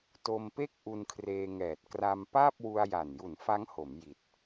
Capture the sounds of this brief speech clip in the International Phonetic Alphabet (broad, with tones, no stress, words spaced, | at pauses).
to˧mpe˥˩k̚ ʔu˧nkʰreː˧ŋɛː˨˩t̚ kra˧m paː˥˩p̚wu˧a̯ja˨˩nju˨˩n fa˦˥ŋho˩˦m ji˨˩t̚